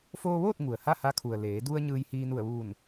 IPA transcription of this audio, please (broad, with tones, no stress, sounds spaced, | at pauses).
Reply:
f oː˧ ʋ oː˥˨ t̚ ŋ u˩ ə̯ h a˥˨ h a˧˥ kʰ u˩ ə̯ l eː˩˧ d u˧ ə̯ ɲ ɯː˧ j h iː˧ n u˧˩ ə̯ ʋ uː˧˩ n